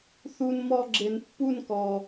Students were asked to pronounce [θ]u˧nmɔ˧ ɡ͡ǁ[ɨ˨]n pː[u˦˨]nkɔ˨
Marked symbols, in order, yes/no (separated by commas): yes, no, yes